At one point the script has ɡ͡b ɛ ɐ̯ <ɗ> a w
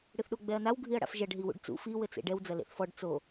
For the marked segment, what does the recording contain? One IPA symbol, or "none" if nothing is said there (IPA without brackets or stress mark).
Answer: n